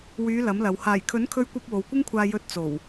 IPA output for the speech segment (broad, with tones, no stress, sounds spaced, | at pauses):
w yː˨˧ l ɐ˨˥ m l ɐ˨ w h aː˨˩ j kʰ ɵ˨˥ n kʰ ɵ˧ ɥ kʷ ɐ˧ p̚ w o˨ w kʷ ɪ˥ ŋ kʷʰ aː˧ j ɵ˧ t̚ t͡s o˨˩ w